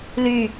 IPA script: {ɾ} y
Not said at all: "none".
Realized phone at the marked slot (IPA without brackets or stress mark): l